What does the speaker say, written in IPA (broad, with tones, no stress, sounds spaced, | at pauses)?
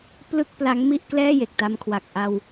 p l ɯ˥˩ k̚ p l a˦˥ ŋ m i˥˩ ʔ k l ɛː˥˩ j e˨˩ k̚ t a˧ m kʰ w a˨˩ k̚ ʔ a˧ w